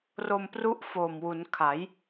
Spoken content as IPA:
r o˧ m p r u˦˥ ʔ f o˨˩ m w u˩˦ n kʰ a˩˦ j

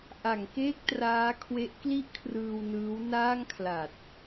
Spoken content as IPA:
ʔ a˩˦ ŋ k eː˥˩ k̚ t r aː˦˥ kʰ w e˦˥ ʔ k l i˥˩ ʔ kʰ r ɯː˧ w n ɯː˦˥ w n aː˥˩ ŋ kʰ l a˨˩ t̚

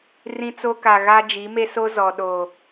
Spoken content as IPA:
r ĩ˦ t͡s o˦ k a˨ ɣ a˦ d͡ʒ i˨˦ m e˦ s o˦ z ɔ˨ ɗ o˨

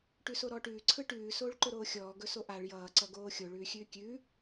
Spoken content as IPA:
ʈ ʉ s o ɾ ɔː ʈ ʉː ǀʰ ɯ ʈ ʉː s oː ɭ ǃ ɵ ɾ oː xʲ ɔː ɡ ɵ s o ʔ a ɭ j ʌː ǀ ʌ ɡ oː xʲ o ɭ ʉː xʲ ʉː kʲ ʉ

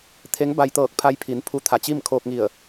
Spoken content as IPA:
t̪ʰ e˧˥ ŋ b a˧ j t̪ ɤː˧˩ k̚ pʰ a˧ j pʰ i˩˧ n pʰ u˧˥ t̪ʰ a˧˩ t͡ɕ i˥˨ m kʰ oː˧ k̚ ŋ i˧˩ ə̯

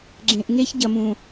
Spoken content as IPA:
ɡ͡ǁ ẽ˨ ʔ ŋ e˦ ç ɟ ɐ˨ m ũ˨

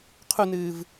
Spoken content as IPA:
qʰ u n ɨː v

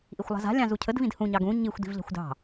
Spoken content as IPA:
ʔ i xʷ lˠ a̤ z a̤ lʲ ɑ̃ z u cʰ ə d v ĩ d h ũ ɲ ɑ ɡ ũ ɲ i xʷ d i̤ v ʎ a̤ xʷ d ɑ̤

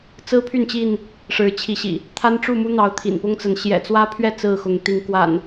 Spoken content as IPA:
t͡s ɹ̩˦ pʰ y˥˨ n t͡ɕ i˥˨ n | ʂ ɻ̩˨˦ t͡ɕʰ i˨˦ ɕ ḭ˨˩ | t̪ʰ a˦ n ʈ͡ʂ u˥˨ m u˦ n̪ ɑ˨˦ ʊ̯ t̪ʰ ḭ˨˩ n p ʊ˦ ŋ t͡s ə˨˦ n ɕ j ɛ̰˨˩ t͡s w ä˦ pʰ ɥ ɛ˥˨ t͡s ɹ̩˥˨ x ʊ˨˦ ŋ t̪ i˨˦ ŋ k w a̰˨˩ n

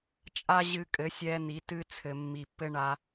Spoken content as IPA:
t͡ʃʼ a˦ ʑ ɨ˧ kʼ ɘ˨˦ sʲ ɛ˧ n̪ i˨˦ t ɨ˦ t͡sʰ ɘ˨ mː i˨ pː ɘ˧ ɳ a˧

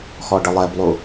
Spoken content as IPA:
x ɔ ɖ ə lˠ ɛ b lˠ u

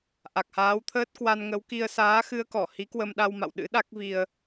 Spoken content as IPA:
ʔ a˨˩ k̚ h aː˨˦ w t̪ʰ əː˦˥ t̚ k w a˧ n ŋ ə˨˦ w k i˧ ə̯ s aː˨˦ x ɨ˧ ə̯ k ɔ˧˩ h i˨˦ k w ə˧ m ɗ a˧ w m a̰˧˨ w ɗ ɨ̰˧˥ ɗ a˦˥ k̚ v i˧ ə̯

